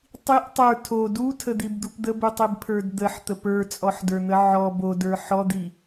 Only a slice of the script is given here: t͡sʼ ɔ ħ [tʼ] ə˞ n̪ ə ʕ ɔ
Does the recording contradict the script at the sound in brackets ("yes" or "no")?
yes